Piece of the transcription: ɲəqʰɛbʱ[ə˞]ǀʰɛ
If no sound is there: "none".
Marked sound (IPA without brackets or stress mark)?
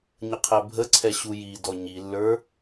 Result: ə